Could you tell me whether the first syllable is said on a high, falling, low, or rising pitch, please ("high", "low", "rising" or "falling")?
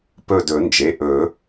falling